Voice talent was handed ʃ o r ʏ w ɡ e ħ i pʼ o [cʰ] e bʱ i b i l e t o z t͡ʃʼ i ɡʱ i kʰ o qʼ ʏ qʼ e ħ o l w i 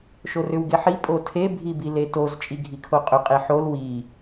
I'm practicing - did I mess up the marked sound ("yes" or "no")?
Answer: yes